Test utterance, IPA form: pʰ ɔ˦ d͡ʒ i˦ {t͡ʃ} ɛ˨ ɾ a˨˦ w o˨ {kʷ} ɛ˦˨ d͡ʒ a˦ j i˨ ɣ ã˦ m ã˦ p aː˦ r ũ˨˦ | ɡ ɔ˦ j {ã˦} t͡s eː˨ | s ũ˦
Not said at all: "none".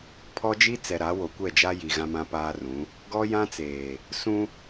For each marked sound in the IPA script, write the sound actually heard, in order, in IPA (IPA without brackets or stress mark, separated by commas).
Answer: t͡s, kʷ, ã˦